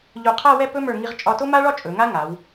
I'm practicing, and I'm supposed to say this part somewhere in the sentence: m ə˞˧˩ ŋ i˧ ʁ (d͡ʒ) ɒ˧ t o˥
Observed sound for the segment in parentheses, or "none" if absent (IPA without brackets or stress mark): t͡ʃʼ